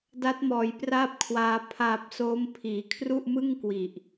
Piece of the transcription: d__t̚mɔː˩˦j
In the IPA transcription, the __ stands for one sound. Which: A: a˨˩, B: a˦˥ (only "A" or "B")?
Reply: B